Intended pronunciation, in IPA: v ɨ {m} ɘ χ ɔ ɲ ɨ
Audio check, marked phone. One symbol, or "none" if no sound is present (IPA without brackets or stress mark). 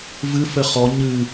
f